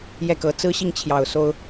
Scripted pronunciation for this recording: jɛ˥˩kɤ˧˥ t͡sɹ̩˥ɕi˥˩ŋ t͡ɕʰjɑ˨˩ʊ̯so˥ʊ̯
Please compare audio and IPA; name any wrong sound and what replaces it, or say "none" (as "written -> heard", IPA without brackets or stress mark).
none